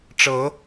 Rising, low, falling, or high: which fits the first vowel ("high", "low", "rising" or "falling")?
rising